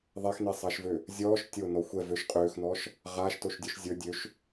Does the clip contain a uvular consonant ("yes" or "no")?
yes